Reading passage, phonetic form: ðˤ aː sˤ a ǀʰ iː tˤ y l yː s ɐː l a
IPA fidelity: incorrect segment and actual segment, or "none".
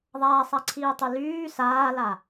ɐː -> aː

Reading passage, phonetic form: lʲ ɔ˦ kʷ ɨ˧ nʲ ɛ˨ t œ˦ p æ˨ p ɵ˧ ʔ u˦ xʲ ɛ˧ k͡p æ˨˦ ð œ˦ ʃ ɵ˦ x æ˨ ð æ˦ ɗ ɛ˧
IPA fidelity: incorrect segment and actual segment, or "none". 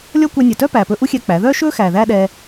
ɨ˧ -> ɛ˧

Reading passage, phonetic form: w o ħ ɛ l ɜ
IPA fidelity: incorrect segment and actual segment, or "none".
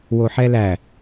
ɜ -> æ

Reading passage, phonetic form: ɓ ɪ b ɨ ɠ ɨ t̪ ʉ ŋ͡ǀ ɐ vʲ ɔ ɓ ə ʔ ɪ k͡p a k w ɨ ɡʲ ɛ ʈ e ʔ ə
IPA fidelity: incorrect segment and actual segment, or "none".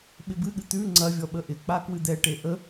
ɡʲ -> d̪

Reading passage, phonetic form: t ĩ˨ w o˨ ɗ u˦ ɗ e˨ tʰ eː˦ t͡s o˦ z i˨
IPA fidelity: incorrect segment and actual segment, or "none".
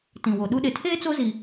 none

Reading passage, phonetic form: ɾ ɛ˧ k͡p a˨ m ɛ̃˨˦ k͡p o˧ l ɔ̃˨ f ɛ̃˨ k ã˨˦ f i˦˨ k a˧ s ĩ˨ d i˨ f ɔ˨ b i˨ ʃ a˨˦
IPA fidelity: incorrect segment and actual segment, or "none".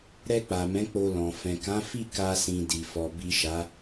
none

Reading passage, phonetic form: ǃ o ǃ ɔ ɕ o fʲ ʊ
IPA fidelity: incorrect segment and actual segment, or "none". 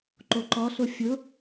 ɕ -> ɬ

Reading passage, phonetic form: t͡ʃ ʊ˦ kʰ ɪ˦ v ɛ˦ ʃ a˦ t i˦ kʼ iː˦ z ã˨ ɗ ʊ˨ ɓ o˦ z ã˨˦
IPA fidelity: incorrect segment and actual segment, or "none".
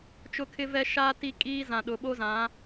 none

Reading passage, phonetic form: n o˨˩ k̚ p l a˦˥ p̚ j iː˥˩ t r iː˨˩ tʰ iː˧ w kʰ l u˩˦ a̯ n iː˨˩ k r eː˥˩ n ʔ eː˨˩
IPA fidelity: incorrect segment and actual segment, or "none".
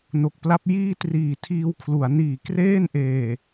none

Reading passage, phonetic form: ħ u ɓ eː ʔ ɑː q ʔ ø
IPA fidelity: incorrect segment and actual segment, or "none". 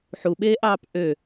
q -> p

